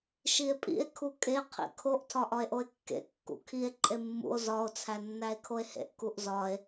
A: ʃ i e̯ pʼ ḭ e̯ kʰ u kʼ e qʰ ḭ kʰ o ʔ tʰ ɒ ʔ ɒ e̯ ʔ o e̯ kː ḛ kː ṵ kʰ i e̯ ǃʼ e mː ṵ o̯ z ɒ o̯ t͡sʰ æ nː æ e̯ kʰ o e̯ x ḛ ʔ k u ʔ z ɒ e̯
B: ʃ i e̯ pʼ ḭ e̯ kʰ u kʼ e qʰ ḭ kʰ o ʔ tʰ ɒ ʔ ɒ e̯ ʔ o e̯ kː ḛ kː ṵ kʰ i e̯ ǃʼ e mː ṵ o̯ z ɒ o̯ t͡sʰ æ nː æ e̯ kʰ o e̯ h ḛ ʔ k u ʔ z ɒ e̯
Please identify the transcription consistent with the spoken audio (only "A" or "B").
B